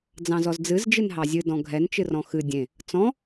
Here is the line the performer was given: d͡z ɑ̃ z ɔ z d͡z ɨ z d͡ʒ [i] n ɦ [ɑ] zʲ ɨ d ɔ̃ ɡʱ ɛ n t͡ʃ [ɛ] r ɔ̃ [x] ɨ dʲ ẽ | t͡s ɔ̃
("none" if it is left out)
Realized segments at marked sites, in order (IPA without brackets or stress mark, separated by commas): ɨ, ɑ, ɨ, x